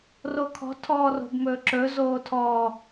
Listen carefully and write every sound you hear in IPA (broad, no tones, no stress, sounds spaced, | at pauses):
r o kʰ ɔ̤ tʰ ɔː r o̤ b m ɵː ǁ ɵ z oː tʰ ɔ